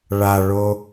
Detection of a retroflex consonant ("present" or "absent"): present